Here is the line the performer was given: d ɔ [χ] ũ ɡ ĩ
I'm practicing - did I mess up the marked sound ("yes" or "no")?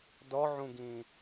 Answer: yes